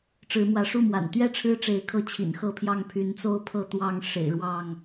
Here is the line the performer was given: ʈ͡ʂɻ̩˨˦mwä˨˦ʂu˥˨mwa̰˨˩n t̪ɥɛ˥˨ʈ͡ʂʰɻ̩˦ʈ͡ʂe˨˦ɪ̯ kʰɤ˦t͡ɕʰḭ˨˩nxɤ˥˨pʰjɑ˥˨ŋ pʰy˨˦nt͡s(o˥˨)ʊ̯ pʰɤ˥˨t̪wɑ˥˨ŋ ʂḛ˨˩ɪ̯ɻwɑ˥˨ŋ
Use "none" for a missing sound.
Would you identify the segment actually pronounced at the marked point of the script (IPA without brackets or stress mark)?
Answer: o˥˨